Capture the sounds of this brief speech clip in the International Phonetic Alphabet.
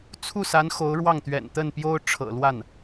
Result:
t͡sʰ u˥˩ s a˧˥ n x o˧˥ ʊ̯ ɻ w ɑ˥˩ ŋ t̪ ɥ ɛ̰˨˩ n t̪ ə˥˩ n p j o˥ ʊ̯ ʈ͡ʂʰ ɤ̰˨˩ l w a˥˩ n

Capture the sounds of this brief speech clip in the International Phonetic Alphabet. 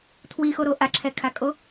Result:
tʰ w i x o ɾ o ʔ a ǁʰ ɛ kʰ a kʼ o

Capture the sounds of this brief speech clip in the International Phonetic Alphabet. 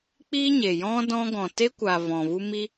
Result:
k͡p iː˦ ɲ e˨ j ɔ̃˦ d ɔ̃˦ ɡ ɔ̃˨ t e˦ kʷ aː˨ v ɔ̃˨ v u˦ m i˦

